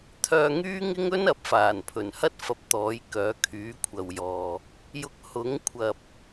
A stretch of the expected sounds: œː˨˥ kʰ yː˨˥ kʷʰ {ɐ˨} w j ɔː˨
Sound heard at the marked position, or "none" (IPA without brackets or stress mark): ɐ˨